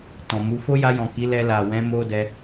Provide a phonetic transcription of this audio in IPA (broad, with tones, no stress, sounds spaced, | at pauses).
t ɔ̃˨ m u˧ f o˦ j a˧ j ɔ̃˨ k i˨˦ l ɛ˧ l a˨ w ɛ̃˨˦ m o˦ d ɛ˧